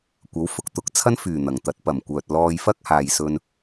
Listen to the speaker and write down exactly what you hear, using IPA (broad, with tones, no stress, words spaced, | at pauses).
kʷɐ˨˥wfʊ˧k̚t̪ʊ˨˥k̚ t͡sʰɐ˥nfyː˨˩ n̪ɐ˨˩ŋ t̪ɐ˨˥t̚pɐ˨˩mkʷœː˨t̚ lɔː˧jfɐ˥k̚ haː˨jsɵ˧n